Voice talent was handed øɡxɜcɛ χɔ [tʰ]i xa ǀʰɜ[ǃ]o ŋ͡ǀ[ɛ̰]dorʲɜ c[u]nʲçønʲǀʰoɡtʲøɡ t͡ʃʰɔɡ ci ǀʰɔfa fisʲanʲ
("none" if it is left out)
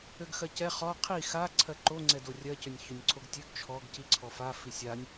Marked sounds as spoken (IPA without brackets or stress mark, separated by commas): qʰ, ǃ, ɛ, ø